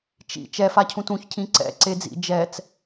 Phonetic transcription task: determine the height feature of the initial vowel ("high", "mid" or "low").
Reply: high